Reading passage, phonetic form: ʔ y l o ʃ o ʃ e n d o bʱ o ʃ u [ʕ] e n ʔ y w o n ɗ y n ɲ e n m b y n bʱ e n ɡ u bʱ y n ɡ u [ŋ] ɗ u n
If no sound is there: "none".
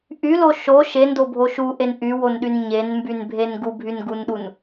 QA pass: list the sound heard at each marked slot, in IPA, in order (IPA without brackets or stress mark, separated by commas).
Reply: ʔ, n